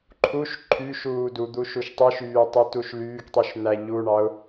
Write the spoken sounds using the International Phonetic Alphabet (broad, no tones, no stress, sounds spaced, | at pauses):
ǃʰ u ʃ ǃʰ y ʃ uː d u d̪ u ʃ u ʃ tˤ ɯ ʃ yː tˤ ɯ t u ʃ l yː k tˤ y ʃ n̪ æ ʎ u ɳ ɑ ʊ̯